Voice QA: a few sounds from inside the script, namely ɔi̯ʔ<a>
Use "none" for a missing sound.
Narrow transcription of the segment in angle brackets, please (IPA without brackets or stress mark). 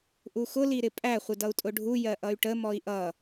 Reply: ʌ